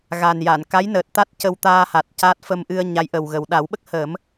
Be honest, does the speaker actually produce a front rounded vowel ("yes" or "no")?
no